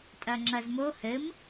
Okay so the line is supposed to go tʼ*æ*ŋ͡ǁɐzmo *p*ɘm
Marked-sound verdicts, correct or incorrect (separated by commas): incorrect, incorrect